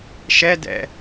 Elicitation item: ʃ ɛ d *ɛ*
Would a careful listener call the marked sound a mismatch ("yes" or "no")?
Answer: yes